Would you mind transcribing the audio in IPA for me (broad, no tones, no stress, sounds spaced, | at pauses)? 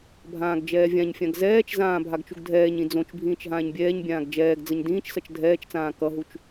bʱ ãː ɡ d͡ʒ ɛː vʲ ã ɲ fʲ ã ɡ z ɛː t͡ʃ z ãː bʱ a ɡ t͡ʃ u ɡ dʱ ɛː ɲ ĩ d͡z õ t͡ʃ bʱ ĩː t͡ʃ ɦ ãː ɲ bʲ ɛː ɲ bʲ ãː ɡ d͡ʒ ɛː ɡ d͡z ʌ ɲ d ĩː t͡ʃ s ʌ t͡ʃ dʱ ɛː t͡ʃ t͡s ãː k ʌ ɦ u t͡ʃ